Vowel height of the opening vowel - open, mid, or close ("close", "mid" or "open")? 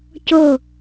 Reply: mid